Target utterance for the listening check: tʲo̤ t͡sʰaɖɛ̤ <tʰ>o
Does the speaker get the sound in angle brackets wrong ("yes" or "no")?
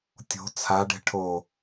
yes